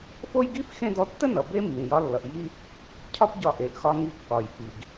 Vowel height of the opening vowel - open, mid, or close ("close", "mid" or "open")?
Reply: mid